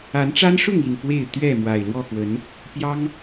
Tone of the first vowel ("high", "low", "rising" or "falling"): rising